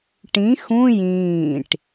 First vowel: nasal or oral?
nasal